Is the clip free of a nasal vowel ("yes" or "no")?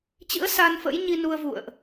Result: yes